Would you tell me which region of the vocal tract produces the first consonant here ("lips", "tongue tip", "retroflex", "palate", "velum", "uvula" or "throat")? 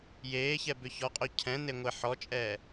palate